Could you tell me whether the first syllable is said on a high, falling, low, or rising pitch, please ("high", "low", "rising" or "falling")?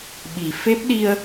low